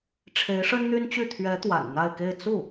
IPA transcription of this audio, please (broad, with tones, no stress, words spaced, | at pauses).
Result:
ʈ͡ʂʰe˧˥ɪ̯ʂə˥nn̪y˥nt͡ɕy˥˩ t̪ʰɥɛ˧˥ t̪wa̰˨˩nn̪a˥˧ɪ̯ke˥˧ɪ̯ t͡su˥˩